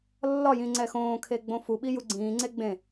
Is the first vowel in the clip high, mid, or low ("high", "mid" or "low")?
low